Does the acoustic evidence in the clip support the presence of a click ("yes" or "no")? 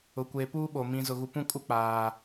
no